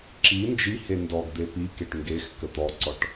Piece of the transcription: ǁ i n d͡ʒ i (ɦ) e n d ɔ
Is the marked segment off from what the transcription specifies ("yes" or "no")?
yes